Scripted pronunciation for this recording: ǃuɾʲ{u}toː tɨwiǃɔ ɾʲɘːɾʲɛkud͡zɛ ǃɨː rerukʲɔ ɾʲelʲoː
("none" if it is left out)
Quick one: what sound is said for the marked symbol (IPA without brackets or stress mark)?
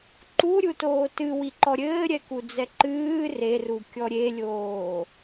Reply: u